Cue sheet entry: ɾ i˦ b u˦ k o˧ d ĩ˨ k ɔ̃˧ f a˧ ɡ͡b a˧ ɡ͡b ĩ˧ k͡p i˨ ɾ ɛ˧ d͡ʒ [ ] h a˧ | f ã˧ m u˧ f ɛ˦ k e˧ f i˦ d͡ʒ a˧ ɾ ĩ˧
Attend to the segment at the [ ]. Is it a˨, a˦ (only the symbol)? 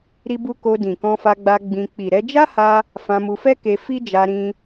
a˦